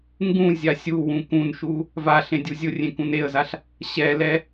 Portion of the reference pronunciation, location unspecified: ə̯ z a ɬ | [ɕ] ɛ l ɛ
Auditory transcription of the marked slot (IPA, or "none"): ɕ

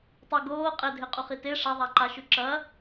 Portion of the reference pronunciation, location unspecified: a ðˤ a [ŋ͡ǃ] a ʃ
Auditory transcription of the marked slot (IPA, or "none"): ǃ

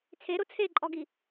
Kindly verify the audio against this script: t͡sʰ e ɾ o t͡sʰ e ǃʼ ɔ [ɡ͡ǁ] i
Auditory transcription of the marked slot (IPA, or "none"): ɡ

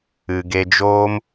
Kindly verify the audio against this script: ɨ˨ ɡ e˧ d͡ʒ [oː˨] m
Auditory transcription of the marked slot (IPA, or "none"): oː˦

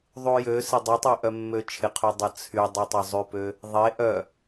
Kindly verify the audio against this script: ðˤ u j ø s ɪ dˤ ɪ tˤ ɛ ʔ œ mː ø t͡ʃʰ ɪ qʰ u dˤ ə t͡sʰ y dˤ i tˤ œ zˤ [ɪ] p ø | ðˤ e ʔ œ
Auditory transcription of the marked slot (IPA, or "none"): y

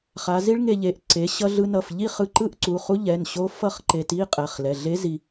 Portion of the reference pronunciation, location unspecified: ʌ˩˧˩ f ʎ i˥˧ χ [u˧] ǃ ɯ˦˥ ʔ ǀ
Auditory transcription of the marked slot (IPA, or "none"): ɯ˧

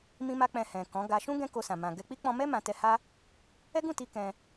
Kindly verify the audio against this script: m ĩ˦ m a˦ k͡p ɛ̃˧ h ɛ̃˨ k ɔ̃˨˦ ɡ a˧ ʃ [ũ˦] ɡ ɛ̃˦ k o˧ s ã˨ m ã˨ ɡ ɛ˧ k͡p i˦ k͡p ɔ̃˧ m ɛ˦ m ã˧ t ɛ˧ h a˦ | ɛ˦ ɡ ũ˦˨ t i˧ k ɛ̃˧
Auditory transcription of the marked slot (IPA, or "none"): ũ˦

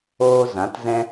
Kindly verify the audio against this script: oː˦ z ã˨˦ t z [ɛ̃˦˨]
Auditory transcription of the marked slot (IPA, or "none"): ɛ̃˦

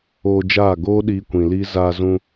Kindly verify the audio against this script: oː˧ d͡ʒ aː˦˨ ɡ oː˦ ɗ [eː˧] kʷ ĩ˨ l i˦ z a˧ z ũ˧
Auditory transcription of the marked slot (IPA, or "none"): iː˧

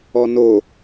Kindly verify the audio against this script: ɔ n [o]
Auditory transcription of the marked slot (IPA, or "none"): o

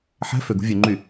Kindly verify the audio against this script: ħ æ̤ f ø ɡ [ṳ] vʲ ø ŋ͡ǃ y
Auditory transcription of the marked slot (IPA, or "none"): ṳ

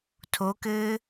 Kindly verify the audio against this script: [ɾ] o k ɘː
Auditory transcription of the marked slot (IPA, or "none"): tʰ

